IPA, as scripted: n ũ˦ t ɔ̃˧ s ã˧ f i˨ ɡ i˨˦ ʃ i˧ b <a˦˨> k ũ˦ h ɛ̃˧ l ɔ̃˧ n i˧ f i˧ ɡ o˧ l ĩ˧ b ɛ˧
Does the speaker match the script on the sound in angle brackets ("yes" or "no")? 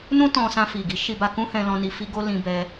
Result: no